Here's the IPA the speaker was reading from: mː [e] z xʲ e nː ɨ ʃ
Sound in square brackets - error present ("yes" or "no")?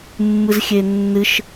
yes